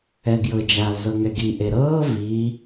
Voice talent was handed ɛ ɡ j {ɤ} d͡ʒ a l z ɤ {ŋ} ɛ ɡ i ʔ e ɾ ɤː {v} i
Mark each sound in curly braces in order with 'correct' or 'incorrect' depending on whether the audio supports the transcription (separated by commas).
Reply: correct, correct, correct